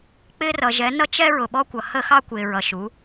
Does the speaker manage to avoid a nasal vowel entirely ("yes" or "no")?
yes